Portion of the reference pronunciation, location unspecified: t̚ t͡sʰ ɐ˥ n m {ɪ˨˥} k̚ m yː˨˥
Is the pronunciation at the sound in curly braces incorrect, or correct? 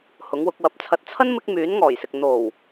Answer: incorrect